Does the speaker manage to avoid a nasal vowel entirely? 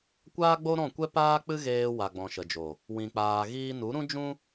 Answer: no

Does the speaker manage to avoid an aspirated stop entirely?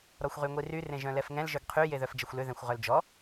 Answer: no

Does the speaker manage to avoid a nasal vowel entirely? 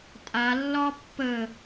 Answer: yes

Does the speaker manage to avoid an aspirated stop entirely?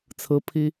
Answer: no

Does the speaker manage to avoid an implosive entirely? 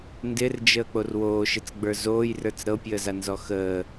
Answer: yes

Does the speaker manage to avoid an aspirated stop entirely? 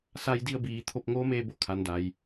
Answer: no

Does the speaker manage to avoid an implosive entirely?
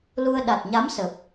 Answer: no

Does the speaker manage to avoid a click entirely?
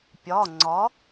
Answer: no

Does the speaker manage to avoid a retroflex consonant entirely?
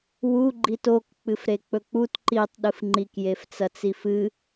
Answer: yes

